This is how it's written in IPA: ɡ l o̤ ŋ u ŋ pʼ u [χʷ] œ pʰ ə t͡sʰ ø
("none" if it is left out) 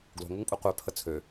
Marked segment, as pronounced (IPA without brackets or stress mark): qʷ